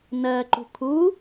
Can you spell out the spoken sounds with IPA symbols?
n ɜ ǃ ṳ kʰ u

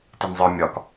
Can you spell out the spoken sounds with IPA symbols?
t e n zˤ ə˞ mʲ ɒ k

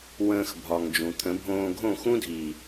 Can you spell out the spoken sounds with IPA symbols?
w ə̃ː˧ x bʱ ɒ˨ ŋ d͡ʒ ũ˨ t̪ʰ ə̃˨˦ bʱ õː˧ ɡʱ õ˦˨ x ũ˦ dʱ i˨

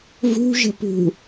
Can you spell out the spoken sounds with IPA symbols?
v ṳ ʒ ə̤ p ṳ

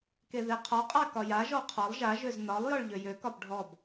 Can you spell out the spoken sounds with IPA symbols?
k e ð e qʰ ɒ qʼ a k ɒ j a ʒ ɔ qʰ ɒ lˠ ʒ a ʒ ø z n ɒ lˠ j ɒ ɭ ʎ ø j ø k ɒ b ɖʱ ɔ b

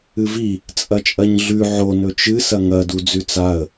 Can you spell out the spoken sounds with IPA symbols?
ɨ v i | t͡sʼ ɐ t͡ʃʼ ɐ ɲ ɮ ʉ ʕ o n ɵ t͡ʃ ɨ s ɐ ŋ ɐ d u d͡z ʉ t͡s a ə̯

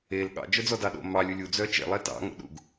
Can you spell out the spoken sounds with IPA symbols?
e l ɠ ɑ̰ d͡ʒ œ d͡z ɔ d ɑ ɗ o̰ m ɑ lʲ u lʲ u d͡z œ t͡ʃ ḛ lˠ ɛ t ɑ̰ ŋ o̰ ɗ ṵ ɡ

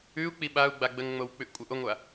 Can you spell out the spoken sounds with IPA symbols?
ʉ u̯ k͡p i ɓ a u̯ ɡ͡b a ɡ͡b ə ŋ ŋ͡m o w k͡p ʉ ʔ kʷʼ ə ʔ o ŋʷ a

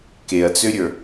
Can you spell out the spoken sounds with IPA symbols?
k e ɐ̯ t͡s ø ɾʲ ə˞

